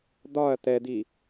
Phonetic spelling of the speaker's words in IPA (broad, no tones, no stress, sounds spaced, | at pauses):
d̪ ɒ ɐ̯ t̪ ɛ d̪ i